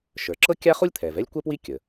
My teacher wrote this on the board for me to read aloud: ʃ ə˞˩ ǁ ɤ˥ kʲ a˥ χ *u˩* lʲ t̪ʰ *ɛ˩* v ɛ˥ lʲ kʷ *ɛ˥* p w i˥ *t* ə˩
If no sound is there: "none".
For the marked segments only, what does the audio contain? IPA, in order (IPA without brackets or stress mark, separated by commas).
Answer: u˥, ɛ˩, ɛ˥, kʲ